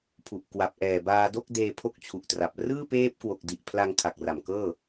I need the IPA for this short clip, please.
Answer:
pʰ u˨˩ ʔ k w a˨˩ p̚ ʔ ɛː˨˩ b aː˧ d o˥˩ k̚ d eː˧ pʰ o˦˥ k̚ t͡ɕʰ u˨˩ ʔ t r a˨˩ p̚ r ɯː˥˩ p eː˦˥ p̚ k w o˨˩ k̚ d i˨˩ ʔ pʰ l a˧ ŋ kʰ a˨˩ k̚ r a˨˩ m k ɤː˥˩

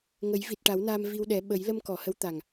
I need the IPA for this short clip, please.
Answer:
ŋ ə˨˩˦ j v i˨˩ t̚ ʈ a˨˩˦ w n aː˧ m v i˧ w ɗ ɛ˨˩˦ ɓ ə˨˩˦ j l ə˧ m k ɔ˨˩˨ h ə˧˥ w t̪ a˨˩ ŋ

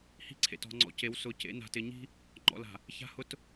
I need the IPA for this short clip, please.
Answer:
h i̤˦ ǀʰ ḛ˨ t ɔ̤˨ ŋ͡ǀ ɔ̰˨ c e˨˦ w s ʊ˨˦ c ḛ˨˦ n a̤˨ t ɪ˨ ɲ i̤˦ | ŋ͡ǃ ɔ̰˨ l a̤˨ | ç a̤˦ h ʊ˦ t

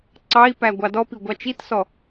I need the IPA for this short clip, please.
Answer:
ǀ ɑ i̯ p æ ɡʷ ɑ d ɔ p i ɡʷ ɑ t͡ʃ i t s ɔ

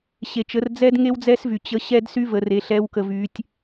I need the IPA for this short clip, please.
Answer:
ɕ e˩ t͡ʃ ə˩˧ r d͡z ɛ˧ d ŋ e˥ w d͡z ɛ˥ s v y˩ t͡ɕ ə˧˥ ɕ ɛ˥ d s y˥ v ə˩˧ r e˩˧ ɬ ɛ˧˥ w k ə˧ v y˧˥ tʲ

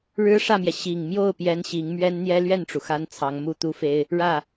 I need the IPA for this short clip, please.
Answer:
ɻ ɻ̩˥ ʂ ä˥˩ m j ɛ˩ ɕ i˨˩ ŋ m j o˥˩ ʊ̯ p j ɛ˥ n ɕ i˧˥ ŋ m ɥ ɛ˥ n n̪ j ɛ˥ l ɥ ɛ˥˩ n ʈ͡ʂ u˩ x a˥ n t͡sʰ ɑ˧˥ ŋ m u˥˩ t̪ u˥ f e˥ ɪ̯ | ɻ ä˥˩

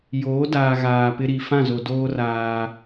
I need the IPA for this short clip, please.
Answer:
j oː˨˦ d aː˨ ɣ aː˨ p ɪ˦ ɾ i˨ f ã˦˨ z o˨ d oː˦ r aː˦

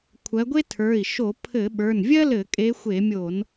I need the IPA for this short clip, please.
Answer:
kʷʰ ɜ˨˦ ɡʷ e˥ tʰ ə˞˩˧˩ i̯ ʃ o˧˩˧ pʰ ɘ˧˩˧ ɓ ə˞˩˧˩ n vʲ ɜ˥ l ɘ˧˩˧ kʼ e˨˦ xʷ e˧˩˧ mʲ o˧˩˧ n

